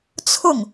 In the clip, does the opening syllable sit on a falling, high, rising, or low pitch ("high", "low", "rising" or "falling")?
falling